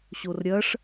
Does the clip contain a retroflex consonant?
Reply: yes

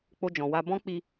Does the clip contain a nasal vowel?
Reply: yes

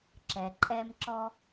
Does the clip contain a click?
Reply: yes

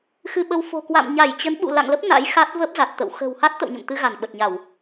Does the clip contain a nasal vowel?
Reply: no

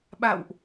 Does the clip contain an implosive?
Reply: yes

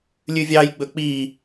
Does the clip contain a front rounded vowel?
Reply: no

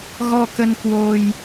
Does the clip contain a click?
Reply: no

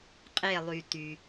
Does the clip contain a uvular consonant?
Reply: yes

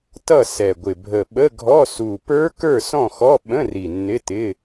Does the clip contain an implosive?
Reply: yes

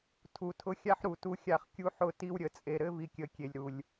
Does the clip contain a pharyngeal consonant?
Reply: yes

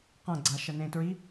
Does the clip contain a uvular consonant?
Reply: yes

